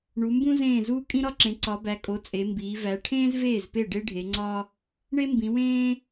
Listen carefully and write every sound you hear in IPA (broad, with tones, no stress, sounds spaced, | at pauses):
ɳ u˨˦ m b ũ˥ z ẽː˥˩ z uː˥ kʼ ĩ˥ ɾ ɒ˥ ǁ ẽ˨˦ ǀ ɒ˨˦ b æ˨˦ kʼ o˨˦ t͡sʼ e˨˦ m b iː˨˦ v æ˨˦ ʈʰ ẽː˥ z v eː˥˩ z p e˥˩ ɖ e˥ ɖʱ e˨˦ ŋ͡ǀ ɒ˥ | ɳ e˥ m b ĩ˨˦ w ẽː˥